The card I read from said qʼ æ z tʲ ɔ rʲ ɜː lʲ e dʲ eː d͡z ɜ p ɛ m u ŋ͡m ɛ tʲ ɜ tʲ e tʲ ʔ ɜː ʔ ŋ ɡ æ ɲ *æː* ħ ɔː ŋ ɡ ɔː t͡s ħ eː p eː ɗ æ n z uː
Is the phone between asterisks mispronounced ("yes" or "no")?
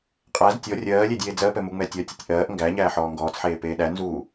no